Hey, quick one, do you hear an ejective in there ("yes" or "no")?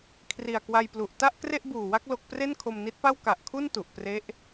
no